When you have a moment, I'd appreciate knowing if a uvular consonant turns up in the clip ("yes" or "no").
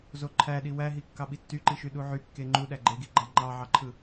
no